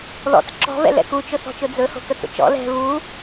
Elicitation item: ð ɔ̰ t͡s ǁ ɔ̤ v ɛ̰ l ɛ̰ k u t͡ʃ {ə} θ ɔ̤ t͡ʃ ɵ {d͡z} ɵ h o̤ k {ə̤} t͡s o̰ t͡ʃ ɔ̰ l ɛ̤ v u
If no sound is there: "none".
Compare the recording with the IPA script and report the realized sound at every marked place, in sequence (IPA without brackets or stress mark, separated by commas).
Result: ɵ, d͡z, ə